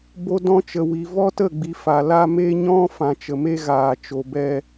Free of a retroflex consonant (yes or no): yes